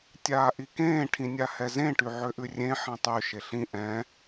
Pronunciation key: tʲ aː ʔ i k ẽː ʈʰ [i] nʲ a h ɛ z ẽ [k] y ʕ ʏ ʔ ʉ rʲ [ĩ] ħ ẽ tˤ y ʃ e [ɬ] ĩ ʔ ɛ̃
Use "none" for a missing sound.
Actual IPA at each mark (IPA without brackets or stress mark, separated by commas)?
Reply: ĩ, ʈ, ẽ, ɬ